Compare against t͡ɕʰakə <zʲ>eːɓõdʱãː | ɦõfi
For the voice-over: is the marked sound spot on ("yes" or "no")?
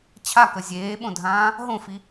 yes